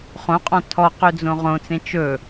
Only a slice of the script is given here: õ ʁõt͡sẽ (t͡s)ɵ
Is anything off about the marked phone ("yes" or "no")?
yes